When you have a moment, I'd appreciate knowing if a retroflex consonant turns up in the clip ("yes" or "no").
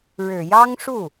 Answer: yes